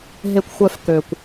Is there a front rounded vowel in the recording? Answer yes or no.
yes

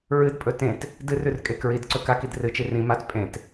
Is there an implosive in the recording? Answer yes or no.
no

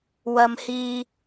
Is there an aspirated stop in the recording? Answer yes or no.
no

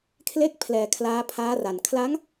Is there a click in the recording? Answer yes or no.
no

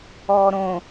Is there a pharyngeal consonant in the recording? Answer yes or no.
no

